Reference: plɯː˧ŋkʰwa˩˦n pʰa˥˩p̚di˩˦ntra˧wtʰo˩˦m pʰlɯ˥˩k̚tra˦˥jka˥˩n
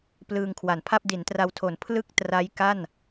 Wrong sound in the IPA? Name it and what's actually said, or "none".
m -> n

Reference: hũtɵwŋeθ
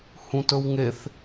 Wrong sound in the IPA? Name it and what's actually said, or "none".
none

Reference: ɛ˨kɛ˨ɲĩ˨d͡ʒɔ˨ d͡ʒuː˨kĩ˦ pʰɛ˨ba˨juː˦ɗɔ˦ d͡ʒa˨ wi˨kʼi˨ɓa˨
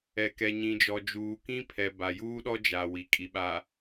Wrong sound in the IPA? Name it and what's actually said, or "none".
none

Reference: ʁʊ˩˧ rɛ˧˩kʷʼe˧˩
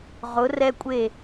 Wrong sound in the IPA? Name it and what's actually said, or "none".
ɛ˧˩ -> ɛ˧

